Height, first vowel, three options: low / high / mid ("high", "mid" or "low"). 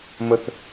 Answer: mid